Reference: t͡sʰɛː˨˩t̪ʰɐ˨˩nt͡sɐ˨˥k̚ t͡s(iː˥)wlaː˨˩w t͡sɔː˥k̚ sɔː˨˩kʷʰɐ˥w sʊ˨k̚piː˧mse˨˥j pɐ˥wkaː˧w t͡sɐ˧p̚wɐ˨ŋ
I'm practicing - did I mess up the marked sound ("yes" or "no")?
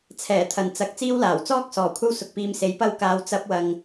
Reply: no